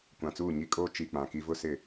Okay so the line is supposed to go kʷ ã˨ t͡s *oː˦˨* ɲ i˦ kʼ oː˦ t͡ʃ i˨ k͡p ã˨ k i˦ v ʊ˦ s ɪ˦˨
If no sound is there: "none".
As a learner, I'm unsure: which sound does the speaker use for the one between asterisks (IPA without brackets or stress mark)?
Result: uː˦˨